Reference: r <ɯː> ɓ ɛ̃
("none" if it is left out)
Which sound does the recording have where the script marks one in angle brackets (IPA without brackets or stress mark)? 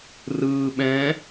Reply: ɯː